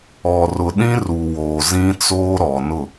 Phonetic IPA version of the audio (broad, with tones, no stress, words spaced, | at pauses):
ɔ˨ rʊ˨ɗĩ˦ru˨woː˨ zĩ˦ t͡soː˦ɾɔ˨ nʊ˦˨